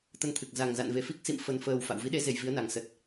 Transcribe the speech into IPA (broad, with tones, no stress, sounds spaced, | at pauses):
t̪ ə˧ n t̪ʰ ɨ˨˩ k̚ z a˨˩ ŋ z a̰˧˨ n v e˧˩ f i˦˥ k̚ s ḭ˧˨ m f ə˨˩ n f əː˨˩ w f a̰˧˨ w v i˨˦ ɗ e˨˦ z e˨˩ j v i˨˦ ə̯ n a˨˩ ŋ s ə˨˩ t̚